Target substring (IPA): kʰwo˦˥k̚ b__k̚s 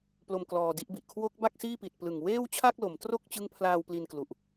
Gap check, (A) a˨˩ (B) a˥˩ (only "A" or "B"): B